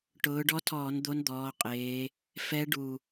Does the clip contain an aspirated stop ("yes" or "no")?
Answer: yes